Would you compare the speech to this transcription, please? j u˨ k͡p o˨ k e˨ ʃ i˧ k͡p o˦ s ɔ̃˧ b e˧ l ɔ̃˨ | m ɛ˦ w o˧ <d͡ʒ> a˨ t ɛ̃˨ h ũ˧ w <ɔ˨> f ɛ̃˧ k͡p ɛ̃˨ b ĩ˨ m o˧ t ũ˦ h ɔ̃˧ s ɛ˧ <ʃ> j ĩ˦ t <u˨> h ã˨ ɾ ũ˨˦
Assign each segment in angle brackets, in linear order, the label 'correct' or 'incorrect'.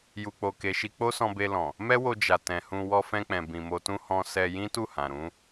correct, incorrect: ɔ˧, incorrect: none, incorrect: u˦˨

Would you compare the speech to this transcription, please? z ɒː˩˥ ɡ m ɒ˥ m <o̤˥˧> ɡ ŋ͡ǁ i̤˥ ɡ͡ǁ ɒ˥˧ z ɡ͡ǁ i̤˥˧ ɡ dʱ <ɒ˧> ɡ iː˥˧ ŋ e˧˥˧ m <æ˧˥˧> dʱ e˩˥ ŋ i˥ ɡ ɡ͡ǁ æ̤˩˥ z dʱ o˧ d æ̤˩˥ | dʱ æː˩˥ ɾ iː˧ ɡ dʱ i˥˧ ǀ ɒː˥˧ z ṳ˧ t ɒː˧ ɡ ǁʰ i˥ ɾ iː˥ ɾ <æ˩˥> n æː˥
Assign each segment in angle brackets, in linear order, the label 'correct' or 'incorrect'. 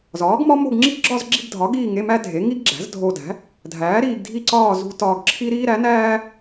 correct, incorrect: ɒ˩˥, incorrect: æ˥, correct

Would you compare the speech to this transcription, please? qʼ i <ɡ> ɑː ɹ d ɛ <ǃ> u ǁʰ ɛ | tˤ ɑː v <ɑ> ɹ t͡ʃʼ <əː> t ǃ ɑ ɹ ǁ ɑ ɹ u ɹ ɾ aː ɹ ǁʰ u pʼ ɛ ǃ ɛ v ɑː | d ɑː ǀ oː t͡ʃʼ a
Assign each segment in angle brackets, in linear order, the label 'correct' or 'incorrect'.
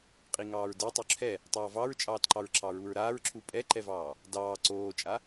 incorrect: ŋ, incorrect: tˤ, correct, incorrect: ɑː

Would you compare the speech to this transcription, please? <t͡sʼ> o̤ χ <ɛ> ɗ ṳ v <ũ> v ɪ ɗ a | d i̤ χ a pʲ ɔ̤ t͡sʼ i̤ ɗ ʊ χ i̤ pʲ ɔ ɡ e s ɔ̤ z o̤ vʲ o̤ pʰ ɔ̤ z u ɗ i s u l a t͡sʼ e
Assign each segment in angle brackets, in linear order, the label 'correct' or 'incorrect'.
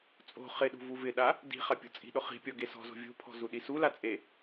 correct, incorrect: ɪ, incorrect: u

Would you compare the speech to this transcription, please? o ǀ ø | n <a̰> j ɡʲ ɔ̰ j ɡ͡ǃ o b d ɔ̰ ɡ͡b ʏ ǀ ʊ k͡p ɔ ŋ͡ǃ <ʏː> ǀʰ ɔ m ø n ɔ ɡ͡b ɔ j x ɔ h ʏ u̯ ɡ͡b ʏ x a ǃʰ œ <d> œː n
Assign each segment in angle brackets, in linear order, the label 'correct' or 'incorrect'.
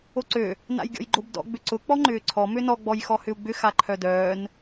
correct, correct, correct

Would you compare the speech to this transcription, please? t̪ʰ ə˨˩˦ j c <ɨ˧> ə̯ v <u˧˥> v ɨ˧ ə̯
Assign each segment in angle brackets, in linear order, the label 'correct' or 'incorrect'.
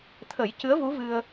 incorrect: ɨ˧˥, correct

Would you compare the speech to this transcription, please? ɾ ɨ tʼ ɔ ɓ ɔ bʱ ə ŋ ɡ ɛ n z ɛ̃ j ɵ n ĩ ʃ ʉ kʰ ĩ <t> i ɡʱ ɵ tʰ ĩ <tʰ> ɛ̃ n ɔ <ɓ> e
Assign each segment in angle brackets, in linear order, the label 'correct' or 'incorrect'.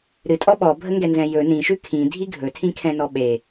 incorrect: dʱ, incorrect: kʰ, correct

